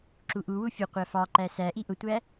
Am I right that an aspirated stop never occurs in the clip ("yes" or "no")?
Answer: yes